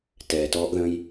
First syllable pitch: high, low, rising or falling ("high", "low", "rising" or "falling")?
low